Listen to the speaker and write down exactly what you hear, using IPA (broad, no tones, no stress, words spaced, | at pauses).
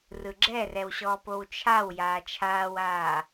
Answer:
rɯɡ͡ǁɛrɛwɕɔː powt͡ʃʰaw jaːt͡ʃʰaːwaː